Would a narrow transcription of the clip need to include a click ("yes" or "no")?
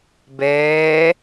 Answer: no